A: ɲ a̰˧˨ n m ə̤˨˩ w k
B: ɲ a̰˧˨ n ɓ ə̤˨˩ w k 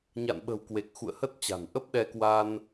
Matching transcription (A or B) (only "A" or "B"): B